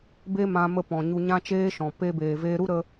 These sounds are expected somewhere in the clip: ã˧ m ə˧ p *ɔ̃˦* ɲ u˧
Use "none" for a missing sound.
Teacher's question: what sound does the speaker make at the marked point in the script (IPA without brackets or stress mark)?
ɔ̃˨